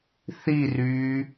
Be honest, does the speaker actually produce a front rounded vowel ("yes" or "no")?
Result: yes